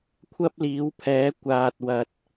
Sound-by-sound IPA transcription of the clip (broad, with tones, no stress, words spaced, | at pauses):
kʷʰɐ˥p̚liː˨˥wpʰɛː˨˥ kʷaː˨t̚wɐ˨t̚